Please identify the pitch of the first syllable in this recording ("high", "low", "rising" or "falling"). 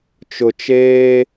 low